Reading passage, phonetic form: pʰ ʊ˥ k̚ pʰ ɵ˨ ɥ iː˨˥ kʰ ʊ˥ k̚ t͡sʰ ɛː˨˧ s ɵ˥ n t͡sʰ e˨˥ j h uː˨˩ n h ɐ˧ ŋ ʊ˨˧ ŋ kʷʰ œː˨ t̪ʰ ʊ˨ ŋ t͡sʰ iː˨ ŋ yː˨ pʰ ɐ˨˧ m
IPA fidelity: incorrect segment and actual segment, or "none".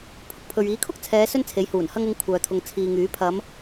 yː˨ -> yː˨˥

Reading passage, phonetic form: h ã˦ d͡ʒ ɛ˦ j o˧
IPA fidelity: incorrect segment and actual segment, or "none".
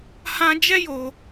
none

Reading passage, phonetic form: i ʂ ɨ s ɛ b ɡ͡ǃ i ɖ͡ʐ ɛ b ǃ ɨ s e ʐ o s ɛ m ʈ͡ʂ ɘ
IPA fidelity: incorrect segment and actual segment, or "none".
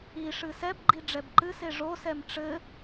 none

